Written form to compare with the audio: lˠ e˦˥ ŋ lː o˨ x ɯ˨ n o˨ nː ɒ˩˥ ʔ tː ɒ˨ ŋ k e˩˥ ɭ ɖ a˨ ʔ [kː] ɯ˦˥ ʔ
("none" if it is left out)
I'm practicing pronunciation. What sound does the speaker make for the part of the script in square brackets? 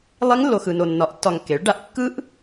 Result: kː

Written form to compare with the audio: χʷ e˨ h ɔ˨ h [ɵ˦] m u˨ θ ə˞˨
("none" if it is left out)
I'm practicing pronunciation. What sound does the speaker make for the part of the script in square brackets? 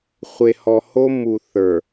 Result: o˦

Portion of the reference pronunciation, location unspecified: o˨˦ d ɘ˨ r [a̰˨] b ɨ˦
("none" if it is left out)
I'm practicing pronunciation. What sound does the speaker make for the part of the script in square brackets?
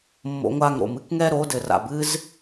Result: a̰˨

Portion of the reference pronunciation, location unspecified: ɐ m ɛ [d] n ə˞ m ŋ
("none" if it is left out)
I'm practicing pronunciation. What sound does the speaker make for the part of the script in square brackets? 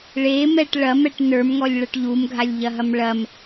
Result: ʈ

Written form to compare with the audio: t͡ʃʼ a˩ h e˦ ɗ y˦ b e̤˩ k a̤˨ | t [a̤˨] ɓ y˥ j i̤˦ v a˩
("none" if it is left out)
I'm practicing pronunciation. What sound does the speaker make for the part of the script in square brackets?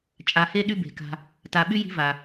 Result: a˨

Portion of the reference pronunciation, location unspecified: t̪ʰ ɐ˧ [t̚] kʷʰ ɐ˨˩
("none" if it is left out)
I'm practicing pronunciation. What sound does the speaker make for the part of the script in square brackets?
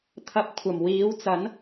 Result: p̚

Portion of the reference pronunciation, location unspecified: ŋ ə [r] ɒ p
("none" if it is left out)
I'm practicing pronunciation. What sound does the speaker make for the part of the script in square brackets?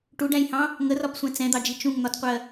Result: r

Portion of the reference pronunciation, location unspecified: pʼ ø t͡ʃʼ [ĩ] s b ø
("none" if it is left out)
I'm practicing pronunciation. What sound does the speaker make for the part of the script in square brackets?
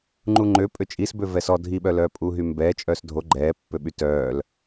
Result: i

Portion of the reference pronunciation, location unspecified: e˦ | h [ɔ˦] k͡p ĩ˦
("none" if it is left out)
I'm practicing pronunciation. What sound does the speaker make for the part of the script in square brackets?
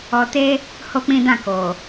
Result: o˦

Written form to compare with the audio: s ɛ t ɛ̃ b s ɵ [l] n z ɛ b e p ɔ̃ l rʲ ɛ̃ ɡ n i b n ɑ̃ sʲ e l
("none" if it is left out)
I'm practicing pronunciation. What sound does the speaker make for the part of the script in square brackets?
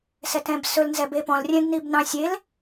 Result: l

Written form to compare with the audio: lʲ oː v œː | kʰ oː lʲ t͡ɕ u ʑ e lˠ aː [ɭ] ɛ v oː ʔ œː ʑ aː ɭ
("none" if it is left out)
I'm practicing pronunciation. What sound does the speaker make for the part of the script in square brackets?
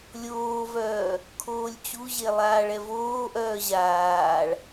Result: ɭ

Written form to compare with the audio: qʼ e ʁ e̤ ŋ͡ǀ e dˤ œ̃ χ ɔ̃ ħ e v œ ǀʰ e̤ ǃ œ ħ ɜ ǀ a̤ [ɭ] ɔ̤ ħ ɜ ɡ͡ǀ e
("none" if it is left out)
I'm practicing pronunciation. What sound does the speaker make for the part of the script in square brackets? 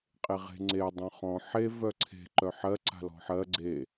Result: l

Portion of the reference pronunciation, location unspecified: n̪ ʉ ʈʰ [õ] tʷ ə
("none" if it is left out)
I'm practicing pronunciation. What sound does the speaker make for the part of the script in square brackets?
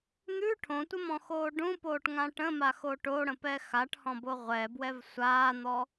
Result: õ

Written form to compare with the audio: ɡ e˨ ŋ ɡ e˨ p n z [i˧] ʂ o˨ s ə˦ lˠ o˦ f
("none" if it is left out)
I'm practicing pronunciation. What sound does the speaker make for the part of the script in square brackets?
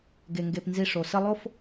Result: i˧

